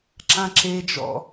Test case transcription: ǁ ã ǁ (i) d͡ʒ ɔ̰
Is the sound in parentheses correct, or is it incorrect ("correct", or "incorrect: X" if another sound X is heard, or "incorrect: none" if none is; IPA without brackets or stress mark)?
incorrect: e